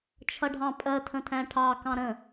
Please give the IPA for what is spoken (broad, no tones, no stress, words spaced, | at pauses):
t͡ʃʰʌɖʱɑ̃pʼɜ tʰə̃tʰæ̃ʈʰɑ kɑ̃ɾə̃